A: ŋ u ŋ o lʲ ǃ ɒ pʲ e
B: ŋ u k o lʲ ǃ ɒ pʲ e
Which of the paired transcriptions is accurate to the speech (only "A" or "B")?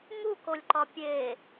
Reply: B